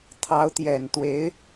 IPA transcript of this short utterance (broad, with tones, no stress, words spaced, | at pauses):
t̪ʰɑ˧˥ʊ̯t̪jɛ˨˩nt̪we˧˥ɪ̯